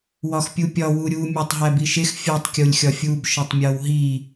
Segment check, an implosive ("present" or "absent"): absent